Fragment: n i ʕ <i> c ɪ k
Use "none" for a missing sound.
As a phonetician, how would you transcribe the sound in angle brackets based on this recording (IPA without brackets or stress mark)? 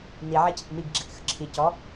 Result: i